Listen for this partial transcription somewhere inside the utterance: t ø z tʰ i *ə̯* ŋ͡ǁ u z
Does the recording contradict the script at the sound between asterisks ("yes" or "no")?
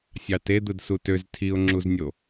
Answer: yes